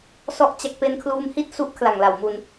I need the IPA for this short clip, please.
s ɔ˥˩ ʔ t͡ɕ a˦˥ k̚ p e˧ n kʰ l uː˧ m h i˥˩ t̚ s u˦˥ ʔ kʰ l a˨˩ ŋ l a˨˩ w m u˧ n

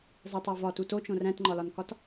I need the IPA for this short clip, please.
zˤ e tˤ æ v ɒ t u t o t͡ʃ õ r æ̃ t ŋ͡ǃ ɒ l ɒ n k ɒ t

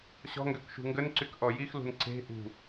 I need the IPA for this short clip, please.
ɕ ɔ̤ ŋ ɡ ø k ʃ ṳ ŋ ɡ ə n ǀ y k ʔ ɔ j i x l ṳ n ǀ e̤ ʔ ṳ

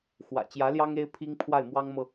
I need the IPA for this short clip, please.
x w ä̰˨˩ t͡ɕ j ä˧˥ l j ɑ˥ ŋ e˥ ɪ̯ pʰ i˥ ŋ pʰ w a˥˩ ɪ̯ m w ɑ˥ ŋ m ɤ˨

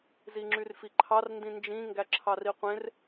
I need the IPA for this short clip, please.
z i ŋ͡ǁ y r f i ǃʰ ɑ r n d ĩ n d͡ʒ ĩ ŋ ɡ æ ǁʰ ɑ r i qʷ ẽ r

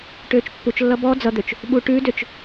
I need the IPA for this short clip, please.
ʈ øː t͡ʃ pː u t͡ʃ lː ʌ b ɔ d͡z ʌ d̪ ø t͡ʃ | ɓ u ʈ ʉ d ø t͡ʃ

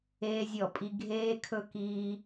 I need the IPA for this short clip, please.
eː˧ zʲ ɔ˧˩˧ pʼ i˧ ɡʱ eː˧ kʰ ɵ˧ k iː˧

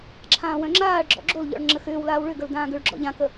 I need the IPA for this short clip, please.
ǁʰ ãː w œ̃ ŋ͡ǁ aː ɭ ɡ͡ǁ ɔ̰ ɡ͡ǁ o l ʎ ɔ̰ ɭ ŋ͡ǁ ə x ʏː w l aː w ɭ ʏ ɡ ə l d ãː ɡ ʏ ɭ ɡ͡ǁ ɔ̰ ʎ ã k ə

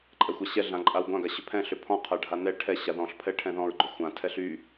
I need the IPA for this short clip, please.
ǃʼ ɛ xʷ a ɕ ɛ ɮ ã ǃʼ a w ɡʷ ã ɡ a ɕ ʏ pʰ ɛ̃ ɬ ʏ pʰ ɔ̃ qʰ a ɖʱ a n ɛ ʈʰ ɛ ɕ a ð ɔ̃ ɬ pʰ ɛ ʈʰ ɛ̃ ð ɔ̃ ɹ ɡ͡ǃ ʏ xʷ ã tʰ ɛ ɬ y

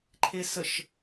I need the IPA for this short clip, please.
ǃʰ e s ə ʃ

